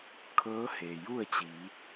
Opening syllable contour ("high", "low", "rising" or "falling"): rising